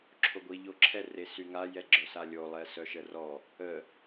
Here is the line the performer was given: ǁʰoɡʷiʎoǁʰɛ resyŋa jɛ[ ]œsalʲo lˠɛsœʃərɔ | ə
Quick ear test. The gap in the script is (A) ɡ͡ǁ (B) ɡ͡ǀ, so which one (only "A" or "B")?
A